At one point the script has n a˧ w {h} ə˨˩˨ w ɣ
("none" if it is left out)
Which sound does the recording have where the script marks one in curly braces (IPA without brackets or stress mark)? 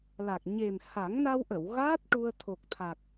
ʔ